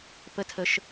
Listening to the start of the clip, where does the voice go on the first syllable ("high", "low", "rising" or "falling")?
rising